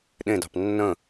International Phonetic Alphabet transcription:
ɗ ẽ d ɑ̤ p nː ə̃

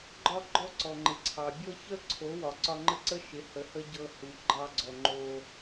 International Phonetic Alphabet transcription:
ɡ͡ǃ ɒ˦ ɡ͡ǃ ɔ˦ ǀ ɔ˨ ŋ͡ǃ ɪ˨ ǀʰ ɑ˨ bʲ ɤ˦ ç ə˦ ǀʰ o˨˦ w ɒ˨ ǀ ɒ˧ ŋ͡ǃ ə˦ ǀ ə˦ ʃ ɪ˨˦ h ə˨ h ə˦ ɟ ɤ˧ h u˨ ɡ͡ǃ ɑ˧ ɡ͡ǀ ɔ˨ ŋ͡ǃ o˧

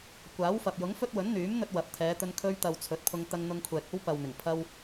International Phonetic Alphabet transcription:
kʷ aː˨˥ w f ɐ˨ p̚ j ʊ˨˥ ŋ f ɵ˥ t̚ w ɵ˨˥ n n̪ yː˨˥ m n̪ ɵ˧ t̚ w ɐ˨˥ p̚ t̪ʰ ɛː˨˧ t̪ ɵ˧ n kʰ ɵ˧ ɥ t̪ ɐ˨ w t͡sʰ ɵ˨˥ t̚ pʰ ʊ˧ ŋ t̪ ɐ˧ ŋ n̪ ʊ˧ ŋ kʷʰ ɛː˨ k̚ o˥ w p ɐ˨ w n̪ ɪ˨˩ ŋ pʰ ɐ˧ w

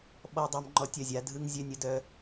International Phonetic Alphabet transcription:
ɓ ɔ˦ dˤ a˦ m ŋ͡ǃ ɔ˦ tʲ ɐ˦˨ zʲ a˦ dʱ ɯ˦ ŋ zʲ œ˦ nʲ ə˦ d œ˦

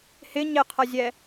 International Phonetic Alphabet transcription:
h ɪ ɲ ɪ qʰ ʌ zʲ ɛ

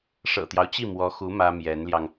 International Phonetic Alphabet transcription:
ʂ ɤ̰˨˩ t̪ j ɑ˦ ʊ̯ t͡ɕ i˥˩ m w ɔ˧˥ x u˧˥ m ä˥ m j ɛ˧˥ n l j ɑ˧ ŋ

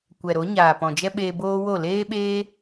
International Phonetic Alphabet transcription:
kʷ ɛ˨ ɾ o˨˦ ɲ aː˨ p ɔ̃˨ d͡ʒ ɛ˦ ɓ eː˧ b oː˦ w o˦˨ l eː˦ ɓ eː˦

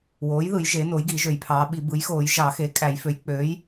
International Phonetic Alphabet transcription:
w oː˩˥ j ð ɯ˨˩˦ j ʒ e˩˥ n o˩˥ j ɡ i˨˩˦ ʒ ø˨˩˦ j pʰ ɑː˩˥ ɓ i˨˩˦ b ɯ˩˥ j x oː˨˩˦ j ʒ ɑ˨˩˦ x eː˩˥ kʼ æ˨˩˦ j f ø˩˥ j k͡p ø˩˥ j

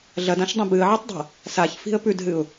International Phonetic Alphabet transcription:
ɮ ɐ d ã ʃ dˤ ɐ̃ b ɨ ə̯ ʕ ɨ tˤ dˤ a̤ | s a ç f i̤ ə̯ p ʉ d ɦ ɨ ʊ̯

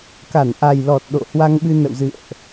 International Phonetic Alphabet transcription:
k a˧˩ n ʔ a˨˩ j l ɔ˨˩ t̚ ɗ o̰˧˨ h w a˧ ŋ ɓ ɨ˧ n ə̰˧˨ w z ɨ̰˧˨ ə̯ ʔ

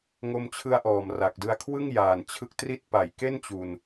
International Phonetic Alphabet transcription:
ŋ o˧ m t͡ɕʰ ɯ˧ a̯ ʔ ɔː˨˩ m r a˨˩ k̚ d ɯ˧ a̯ kʰ w ɯ˥˩ ŋ j aː˨˩ n t͡ɕʰ ɯ˦˥ k̚ t r i˦˥ t̚ p a˩˦ j k e˥˩ n t͡ɕ u˧ n

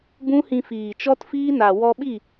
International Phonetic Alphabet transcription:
b ũ˦ h ĩ˧ f iː˨ t͡ʃ ɔ˦ t f iː˦ n a˨ w ɔ˧ ɓ i˦˨

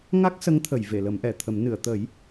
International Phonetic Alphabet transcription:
ŋ a˦˥ k̚ s ə˧˥ ŋ t̪ʰ ə˨˩˨ j v e˨˩˨ l ə˨˩˦ m ʔ ɛ˨˩˨ t̪ʰ ə˨˩˦ m n ɨ˨˩˨ ə̯ t̪ ə˨˩˦ j

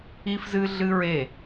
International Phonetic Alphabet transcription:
i˦ f z ɨ˦ ɮ ɨ˦ ɹ e˦˨

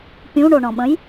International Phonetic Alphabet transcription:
pʲ ũ ɳ o ɳ ɔ̃ ɓ ə̃ j

